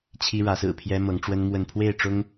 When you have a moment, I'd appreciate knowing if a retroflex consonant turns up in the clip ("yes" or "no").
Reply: yes